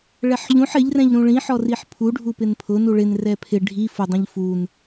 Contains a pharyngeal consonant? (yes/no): yes